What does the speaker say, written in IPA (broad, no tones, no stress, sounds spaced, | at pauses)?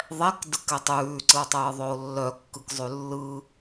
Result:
ðˤ ɛ k d ɯ k ɛ tˤ ʉː ǀ ɯ o̯ tˤ ɯː ðˤ ɵ o̯ lː œ kː ɯ k zˤ ʉ lː ɯ